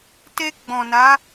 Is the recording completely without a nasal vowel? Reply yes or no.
no